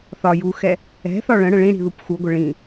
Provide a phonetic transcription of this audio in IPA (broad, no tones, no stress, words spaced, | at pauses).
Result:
θɒ juxɛ | ɛ̤θɒ ɭə̃ ɽə̃ɭĩɽi̤ ðupxuɡʷə ɭĩ